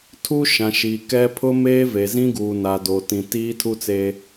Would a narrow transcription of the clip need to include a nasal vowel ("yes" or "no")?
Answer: yes